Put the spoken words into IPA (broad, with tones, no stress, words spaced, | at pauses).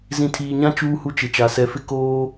zĩ˨tʰiː˨ɲã˦ t͡ʃuː˦hu˦t͡ʃɪ˨t͡ʃa˨ sɛ˨fɪ˦ koː˦